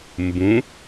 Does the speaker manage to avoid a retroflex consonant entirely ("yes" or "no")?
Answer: yes